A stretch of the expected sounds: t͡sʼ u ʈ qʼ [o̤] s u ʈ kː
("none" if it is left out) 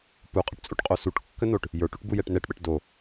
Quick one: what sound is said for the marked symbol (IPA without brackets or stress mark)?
o